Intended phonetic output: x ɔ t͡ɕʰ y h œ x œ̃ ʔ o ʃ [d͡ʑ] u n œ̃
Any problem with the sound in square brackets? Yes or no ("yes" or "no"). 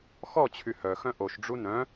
yes